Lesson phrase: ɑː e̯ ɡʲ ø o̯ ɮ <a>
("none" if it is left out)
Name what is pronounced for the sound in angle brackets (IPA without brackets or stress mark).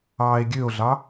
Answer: ɑ